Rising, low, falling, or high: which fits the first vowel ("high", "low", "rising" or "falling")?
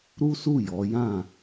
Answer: high